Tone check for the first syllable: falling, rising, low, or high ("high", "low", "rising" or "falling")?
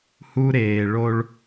high